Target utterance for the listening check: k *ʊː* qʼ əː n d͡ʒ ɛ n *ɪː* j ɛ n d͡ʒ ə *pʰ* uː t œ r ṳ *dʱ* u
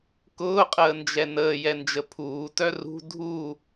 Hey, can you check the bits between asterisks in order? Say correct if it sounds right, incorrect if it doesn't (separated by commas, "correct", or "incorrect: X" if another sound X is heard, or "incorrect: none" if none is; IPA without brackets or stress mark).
correct, incorrect: əː, correct, correct